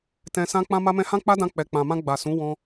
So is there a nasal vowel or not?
yes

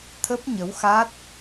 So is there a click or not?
no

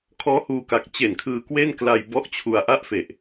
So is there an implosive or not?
no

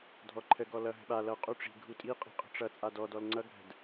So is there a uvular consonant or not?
yes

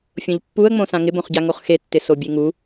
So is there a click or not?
no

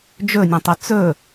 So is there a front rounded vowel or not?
yes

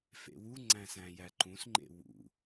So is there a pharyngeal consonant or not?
no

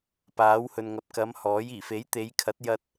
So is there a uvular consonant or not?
no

